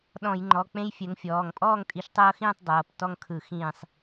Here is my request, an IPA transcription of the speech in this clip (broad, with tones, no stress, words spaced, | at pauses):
ɗɔ̃˧˩˧j ŋ͡ǃɔ˩˧˩k͡pẽ˦jfʲɛ˨˦ŋfʲɔː˩˧˩ŋ pʼɔː˥˨ŋtʼi˨˦ʃtˤɤː˦xĩː˥˨tˤ dˤɤː˩˧˩p tɔ˥˨ŋkʰɯ˧˩˧ xĩː˧˩sˤ